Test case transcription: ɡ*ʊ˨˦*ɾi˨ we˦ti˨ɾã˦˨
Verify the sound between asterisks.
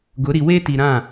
correct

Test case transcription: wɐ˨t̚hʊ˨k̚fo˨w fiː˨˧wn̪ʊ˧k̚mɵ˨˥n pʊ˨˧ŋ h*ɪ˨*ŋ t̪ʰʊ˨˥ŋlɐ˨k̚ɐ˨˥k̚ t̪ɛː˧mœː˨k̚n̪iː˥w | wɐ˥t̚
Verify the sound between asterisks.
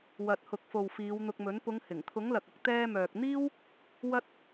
incorrect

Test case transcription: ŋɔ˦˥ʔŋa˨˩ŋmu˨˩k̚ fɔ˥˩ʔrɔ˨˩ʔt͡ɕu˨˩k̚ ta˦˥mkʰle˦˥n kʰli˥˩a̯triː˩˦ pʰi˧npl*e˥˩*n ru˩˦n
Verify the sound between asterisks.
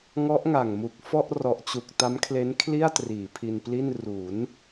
incorrect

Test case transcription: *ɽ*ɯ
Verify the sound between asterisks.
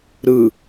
incorrect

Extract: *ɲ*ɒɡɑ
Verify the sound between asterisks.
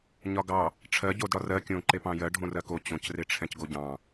correct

